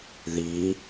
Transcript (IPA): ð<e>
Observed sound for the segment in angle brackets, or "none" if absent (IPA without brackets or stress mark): i